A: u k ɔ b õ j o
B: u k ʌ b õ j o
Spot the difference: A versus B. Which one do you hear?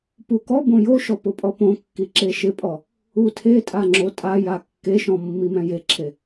A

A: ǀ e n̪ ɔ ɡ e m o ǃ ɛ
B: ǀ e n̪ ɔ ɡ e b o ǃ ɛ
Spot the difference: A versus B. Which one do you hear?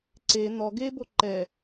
B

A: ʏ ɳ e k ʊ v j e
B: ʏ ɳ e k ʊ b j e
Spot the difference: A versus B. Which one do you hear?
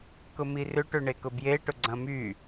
B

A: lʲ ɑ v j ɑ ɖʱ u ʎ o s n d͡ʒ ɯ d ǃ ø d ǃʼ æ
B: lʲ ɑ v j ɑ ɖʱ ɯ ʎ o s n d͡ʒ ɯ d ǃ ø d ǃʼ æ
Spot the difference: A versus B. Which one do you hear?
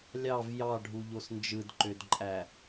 A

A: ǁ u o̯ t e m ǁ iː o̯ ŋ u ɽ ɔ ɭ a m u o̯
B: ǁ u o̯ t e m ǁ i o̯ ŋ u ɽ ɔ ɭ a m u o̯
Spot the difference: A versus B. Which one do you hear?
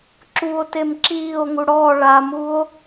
A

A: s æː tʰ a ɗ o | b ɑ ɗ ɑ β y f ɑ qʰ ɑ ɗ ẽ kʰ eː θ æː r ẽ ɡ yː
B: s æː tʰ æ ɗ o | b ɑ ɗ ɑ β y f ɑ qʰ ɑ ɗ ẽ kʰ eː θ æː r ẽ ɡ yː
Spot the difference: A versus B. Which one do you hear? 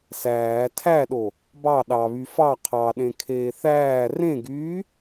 B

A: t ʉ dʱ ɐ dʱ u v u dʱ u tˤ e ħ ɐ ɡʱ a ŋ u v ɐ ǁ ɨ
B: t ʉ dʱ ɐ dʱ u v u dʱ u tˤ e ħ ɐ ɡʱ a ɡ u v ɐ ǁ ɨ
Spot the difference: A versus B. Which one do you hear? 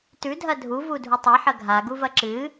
B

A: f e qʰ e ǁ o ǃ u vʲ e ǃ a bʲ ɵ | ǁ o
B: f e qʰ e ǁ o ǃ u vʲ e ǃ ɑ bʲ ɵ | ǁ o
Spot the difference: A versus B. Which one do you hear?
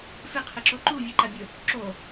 A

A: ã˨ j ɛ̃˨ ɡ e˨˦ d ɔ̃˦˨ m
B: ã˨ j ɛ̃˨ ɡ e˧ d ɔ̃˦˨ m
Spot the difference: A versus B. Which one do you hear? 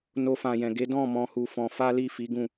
A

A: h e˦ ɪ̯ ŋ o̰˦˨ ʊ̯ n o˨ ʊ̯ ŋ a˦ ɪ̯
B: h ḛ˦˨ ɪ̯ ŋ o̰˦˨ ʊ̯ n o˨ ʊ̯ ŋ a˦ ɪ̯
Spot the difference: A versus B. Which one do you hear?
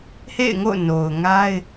B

